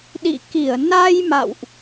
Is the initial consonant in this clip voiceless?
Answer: no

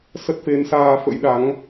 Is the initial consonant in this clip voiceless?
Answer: yes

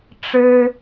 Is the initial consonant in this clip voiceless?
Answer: yes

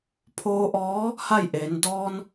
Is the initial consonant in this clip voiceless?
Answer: yes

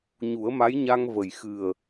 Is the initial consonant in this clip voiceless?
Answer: no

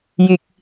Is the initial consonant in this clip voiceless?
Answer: no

